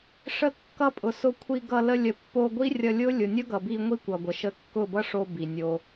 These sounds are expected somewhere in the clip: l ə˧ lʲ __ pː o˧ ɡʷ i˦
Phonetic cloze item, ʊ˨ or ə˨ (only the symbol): ə˨